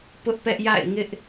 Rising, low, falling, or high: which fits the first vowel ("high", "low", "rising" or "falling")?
high